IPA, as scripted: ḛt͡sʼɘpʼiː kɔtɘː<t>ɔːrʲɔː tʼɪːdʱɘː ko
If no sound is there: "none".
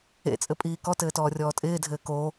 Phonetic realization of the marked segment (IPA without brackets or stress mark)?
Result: t